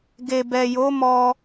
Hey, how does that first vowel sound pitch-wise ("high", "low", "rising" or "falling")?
low